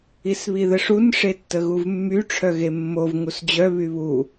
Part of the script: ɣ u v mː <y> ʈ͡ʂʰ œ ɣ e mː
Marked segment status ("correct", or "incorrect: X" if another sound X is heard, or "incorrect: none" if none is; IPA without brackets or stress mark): correct